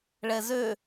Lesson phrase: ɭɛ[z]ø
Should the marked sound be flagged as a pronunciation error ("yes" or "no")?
no